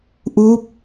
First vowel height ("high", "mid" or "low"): high